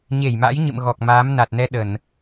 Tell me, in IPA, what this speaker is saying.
ɲe˧˩jma̰˧˥jɲɨ̰˧˨m ɣɔ˨˩k̚maː˨˦mna˨˩t̚nɛ˧ ɗə˧˩˨n

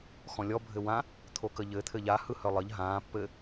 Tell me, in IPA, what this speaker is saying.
xɔ̃lʲɔ bʱɘwã | t̪ʰokəʎɘ t̪ʰɘʎa hɯhœlˠəʎ ɦãː pːɘ

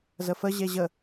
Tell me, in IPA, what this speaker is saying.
zəfə ʑeʑə

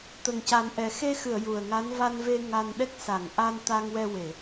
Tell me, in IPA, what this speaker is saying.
t̪ə˨˩ŋca˨˩˦nʔɛ˨˩ xe˧xɨ˨˩˨ə̯ ju˨˩ə̯ŋa˧˥n va˧nve˧ ŋa˧nɗɛ˦˥k̚ sa˨˩˨ŋʔa˧n t̪a˧ŋ wɛ˧we˨˩˨

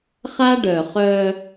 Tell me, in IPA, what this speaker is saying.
χa˦ɖœ˨ χœ˦

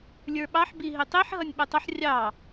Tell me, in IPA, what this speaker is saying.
lʲə˞ɓɑħ biɦitˤiħ ɦʌnʲɓɛtˤəħ rʲɑ

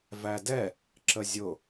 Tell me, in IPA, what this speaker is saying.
vædɛ | ǁəzʲʊ

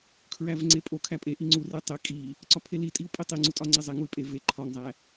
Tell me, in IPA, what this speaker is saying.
kʰɹævŋ͡ǀepʼo kʰæpʼe ʔiŋ͡ǀu retˤe kʼi | ǀɒpʰelitʼiu̯ pʼitˤiŋ͡ǀu tʼɒŋ͡ǀezˤe ŋuy̯pʼe ve ǃʰɒŋzˤæ

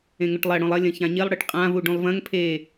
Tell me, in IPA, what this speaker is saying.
ẽŋɵʈlˠɐ ɽõlˠɐ lʲɐ̃çãɲilˠ ɽɨʈqʼã vuɖũlˠvɐ̃ŋ pʰe

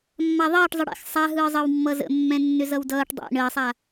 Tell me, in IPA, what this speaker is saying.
mːaðˤʌːʈ zˤəɽɛ̰x sˤaɦɯːzˤʌw mːʌzə̰mːɛ̃nːʏz ʌwdʌːʈ dˤɛ̰ ɳəːsˤa

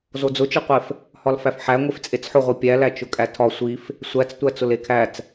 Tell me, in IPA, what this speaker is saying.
zod͡zʊt͡ʃɯqʷef | hɒlfæfħæ ŋʷeft͡sʼet͡sħʊʁʷi pʲælæ t͡ʃʊkʼætʰɒ sʷif | sʷæt͡s tʷæt͡sʊlekʰæt͡s

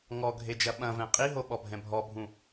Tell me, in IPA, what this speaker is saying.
ŋɔɡʱed͡ʒɐ ɓɐ̃vɛ̃ qʼiɦoɓɔbʱɛ̃ bʱɔbʱũ

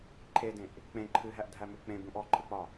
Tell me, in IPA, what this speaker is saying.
ǃʰedẽʔ | k͡pẽ ǃʰɨɦæʔdʱæmʉ k͡pẽbũʔ ɔǃʰɨk͡pɒ

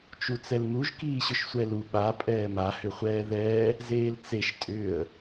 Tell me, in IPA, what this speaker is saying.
t͡ʃut͡sɛlmuʒ kiːɕʏʃsʷɛlu ɓa pʼɛːma hʏχʷɛːðɛː | zeːlt͡seʃ tʼʏːə̯

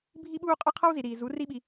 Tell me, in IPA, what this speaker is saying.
bʱi˦ɓuː˦ qʼʌ˦qʰʌ˦wzi˨ ɾiː˨zu˨˦ ri˦ɓi˧

